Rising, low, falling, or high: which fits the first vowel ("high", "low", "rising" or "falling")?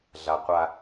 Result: low